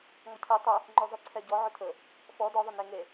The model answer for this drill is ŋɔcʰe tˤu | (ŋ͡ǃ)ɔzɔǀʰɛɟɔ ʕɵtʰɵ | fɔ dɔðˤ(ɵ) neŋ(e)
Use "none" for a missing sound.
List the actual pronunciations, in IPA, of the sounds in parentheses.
ŋ͡ǃ, ɵ, e

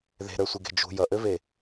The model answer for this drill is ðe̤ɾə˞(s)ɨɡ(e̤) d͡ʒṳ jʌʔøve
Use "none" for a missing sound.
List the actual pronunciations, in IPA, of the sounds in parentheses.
sʷ, e̤

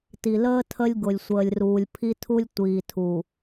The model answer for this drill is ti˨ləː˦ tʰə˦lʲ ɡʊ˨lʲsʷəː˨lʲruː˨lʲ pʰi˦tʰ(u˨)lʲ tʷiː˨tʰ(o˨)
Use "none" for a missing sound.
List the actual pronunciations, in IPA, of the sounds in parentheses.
u˦, u˨

